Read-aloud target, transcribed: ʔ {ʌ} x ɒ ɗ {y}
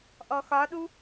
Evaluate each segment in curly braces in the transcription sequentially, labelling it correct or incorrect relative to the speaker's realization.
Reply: incorrect: ɔ, incorrect: u

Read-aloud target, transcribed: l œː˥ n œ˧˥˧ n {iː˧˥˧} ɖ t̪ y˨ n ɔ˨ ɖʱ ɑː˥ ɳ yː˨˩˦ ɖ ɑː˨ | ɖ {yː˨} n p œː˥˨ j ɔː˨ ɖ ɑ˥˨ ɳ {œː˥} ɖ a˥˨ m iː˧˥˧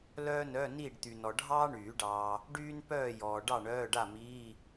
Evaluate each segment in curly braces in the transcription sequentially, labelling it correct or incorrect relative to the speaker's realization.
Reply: incorrect: iː˥˨, incorrect: yː˥, incorrect: œː˧˥˧

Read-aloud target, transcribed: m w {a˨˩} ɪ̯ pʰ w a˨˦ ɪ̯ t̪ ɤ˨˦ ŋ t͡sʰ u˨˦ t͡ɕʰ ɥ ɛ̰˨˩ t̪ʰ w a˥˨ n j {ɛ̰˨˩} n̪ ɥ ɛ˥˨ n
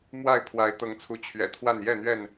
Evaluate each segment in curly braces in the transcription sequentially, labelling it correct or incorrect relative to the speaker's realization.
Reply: incorrect: a˥˨, incorrect: ɛ˥˨

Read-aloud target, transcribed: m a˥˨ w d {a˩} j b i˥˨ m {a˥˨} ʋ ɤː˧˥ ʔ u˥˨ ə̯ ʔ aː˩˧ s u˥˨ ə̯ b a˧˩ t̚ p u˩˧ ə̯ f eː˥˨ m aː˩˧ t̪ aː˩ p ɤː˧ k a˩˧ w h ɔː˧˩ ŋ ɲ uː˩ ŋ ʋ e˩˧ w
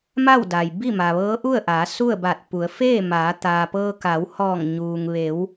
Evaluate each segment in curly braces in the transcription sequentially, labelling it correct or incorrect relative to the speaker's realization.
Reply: correct, incorrect: a˩

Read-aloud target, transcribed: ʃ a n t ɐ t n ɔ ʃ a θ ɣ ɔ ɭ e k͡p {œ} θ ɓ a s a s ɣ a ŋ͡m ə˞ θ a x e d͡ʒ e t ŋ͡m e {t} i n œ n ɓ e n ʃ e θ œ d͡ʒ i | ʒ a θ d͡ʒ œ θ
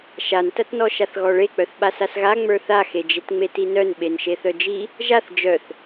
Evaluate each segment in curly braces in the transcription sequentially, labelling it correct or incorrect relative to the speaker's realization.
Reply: correct, correct

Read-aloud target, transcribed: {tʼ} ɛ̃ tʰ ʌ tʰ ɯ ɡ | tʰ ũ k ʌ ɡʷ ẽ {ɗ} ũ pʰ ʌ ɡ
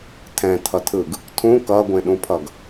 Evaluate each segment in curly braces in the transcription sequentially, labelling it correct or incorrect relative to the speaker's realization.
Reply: incorrect: tʰ, correct

